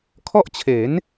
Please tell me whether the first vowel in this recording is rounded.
yes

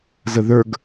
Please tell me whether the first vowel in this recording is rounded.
no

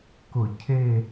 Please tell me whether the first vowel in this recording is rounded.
yes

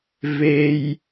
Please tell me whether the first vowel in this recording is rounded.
no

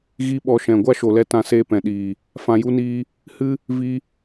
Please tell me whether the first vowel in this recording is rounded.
no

